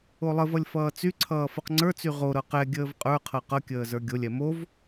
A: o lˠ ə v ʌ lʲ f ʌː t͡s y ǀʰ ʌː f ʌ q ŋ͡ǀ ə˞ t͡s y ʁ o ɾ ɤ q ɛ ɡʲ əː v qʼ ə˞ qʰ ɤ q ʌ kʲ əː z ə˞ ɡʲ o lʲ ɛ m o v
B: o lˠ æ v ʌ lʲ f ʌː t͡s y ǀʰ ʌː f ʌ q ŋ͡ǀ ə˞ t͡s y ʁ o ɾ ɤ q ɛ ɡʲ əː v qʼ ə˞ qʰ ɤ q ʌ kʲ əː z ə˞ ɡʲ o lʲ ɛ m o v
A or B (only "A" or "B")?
A